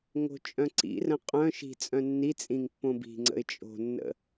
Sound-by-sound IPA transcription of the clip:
ŋo̤t͡ʃʼœ̃ǀḭrə̃ qʼœ̃ ʃi̤ t͡sʼœ̃nːit͡sʼĩŋ pːõbi̤ŋ͡ǀə̰ɪ̯ t͡ʃʼo̤nːə̰

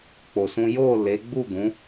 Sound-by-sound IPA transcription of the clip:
k͡po˧sũ˦ jo˦˨ le˨˦ ɡ͡bu˦˨ɡũ˨˦

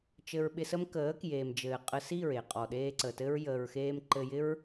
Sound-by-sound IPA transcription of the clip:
t͡ʃɘ˧ɹɓɪ˧sə˦m kəː˨˦kjeː˨md͡ʒɘː˨ qʼə˧si˦˨ɹe˨ qʼɔ˨ɗeː˧ ǀə˨tɘ˦ɹ jəː˧ɹ xeː˧mǃɘ˧jɪ˦ɹ

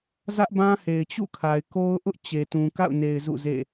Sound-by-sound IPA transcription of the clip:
zä˦ʔbã˦he˨ɪ̯ t͡ɕṵ˦˨kʰa˨ɪ̯ko˦ʊ̯ʔʊ˦ʔ t͡ɕe˨tũ˨ ka̰˦˨ʊ̯ne˨ɪ̯ zṵ˦˨zḛ˦˨

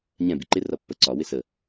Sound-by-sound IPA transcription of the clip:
ɲɛ̃ biǃɪ rʌpːə ǀɒ wɪsə

